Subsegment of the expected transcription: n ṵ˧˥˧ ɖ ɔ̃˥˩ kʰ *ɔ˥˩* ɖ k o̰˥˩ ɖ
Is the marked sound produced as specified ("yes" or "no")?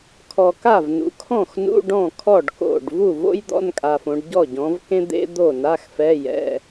yes